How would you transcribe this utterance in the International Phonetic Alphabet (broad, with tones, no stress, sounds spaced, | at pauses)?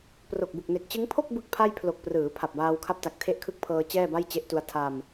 p r o˨˩ k̚ b u˨˩ k̚ n e˨˩ k̚ t͡ɕ ɯ˦˥ ŋ pʰ o˥˩ k̚ b ɯ˥˩ k̚ pʰ a˥˩ j pʰ l o˨˩ k̚ p r ɯː˩˦ pʰ a˨˩ p̚ b aː˧ w kʰ a˦˥ p̚ t a˨˩ k̚ tʰ e˦˥ ʔ kʰ ɯ˦˥ k̚ pʰ ɤː˧ t͡ɕ ɛː˥˩ b a˥˩ j t͡ɕ e˦˥ ʔ t u˧ a̯ tʰ a˧ m